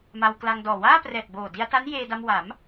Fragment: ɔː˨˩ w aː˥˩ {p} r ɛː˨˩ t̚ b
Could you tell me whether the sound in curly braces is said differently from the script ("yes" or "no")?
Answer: no